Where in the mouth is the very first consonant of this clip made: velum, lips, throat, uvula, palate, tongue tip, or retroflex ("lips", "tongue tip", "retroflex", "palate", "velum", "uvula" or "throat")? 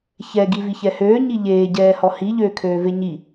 palate